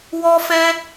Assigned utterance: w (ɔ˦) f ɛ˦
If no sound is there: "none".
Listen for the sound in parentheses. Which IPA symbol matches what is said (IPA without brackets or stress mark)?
ɔ˦